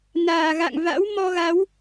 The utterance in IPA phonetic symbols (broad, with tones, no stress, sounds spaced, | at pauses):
n aː˨˩ ɣ a̰˧˨ ŋ v a̰˧˥ w m ɔ˧ ɣ a˨˦ w